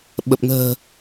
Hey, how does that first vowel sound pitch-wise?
low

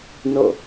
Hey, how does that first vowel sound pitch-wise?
falling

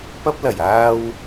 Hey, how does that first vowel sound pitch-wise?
high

